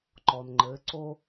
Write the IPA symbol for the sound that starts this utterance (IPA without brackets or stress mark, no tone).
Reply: ǃ